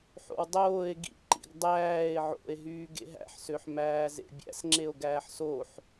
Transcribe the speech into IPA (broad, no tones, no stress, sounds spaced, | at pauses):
ħ o̰ w dˤ oː e̯ ɡ ḭ ǃ ḭ ɡ dˤ æː e̯ ʕ o̰ e̯ ɦ yː ɡ ḛ ɦ æ̰ ħ s ø ħ m æː z ḛ bʲ æ̰ s ŋ͡ǁ e o̯ ɡ æː ħ s o ħ